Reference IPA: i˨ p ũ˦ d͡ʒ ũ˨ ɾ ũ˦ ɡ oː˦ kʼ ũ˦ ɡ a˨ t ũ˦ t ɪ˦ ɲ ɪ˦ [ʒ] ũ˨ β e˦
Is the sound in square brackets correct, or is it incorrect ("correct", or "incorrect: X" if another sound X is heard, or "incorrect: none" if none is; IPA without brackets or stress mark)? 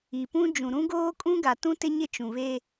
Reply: incorrect: t͡ʃ